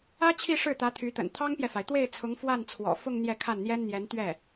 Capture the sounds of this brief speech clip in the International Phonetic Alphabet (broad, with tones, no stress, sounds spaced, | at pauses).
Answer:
ä˥ t͡ɕʰ i˥˧ ʂ ɻ̩˥˩ t̪ ä˧˥ t̪ʰ y˧˥ t̪ ə̰˨˩ n t̪ʰ ɑ˥ ŋ p j ɛ˨ f a˩ ɪ̯ t̪ w e˥˩ ɪ̯ t͡sʰ ʊ˧˥ ŋ f w a˥˩ n t͡sʰ w ɔ̰˨˩ f ʊ˥˧ ŋ n̪ j ɛ˥˧ kʰ a˥˩ n n̪ j ɛ˥ n n̪ j ɛ˧˥ n t̪ ɥ ɛ˥˩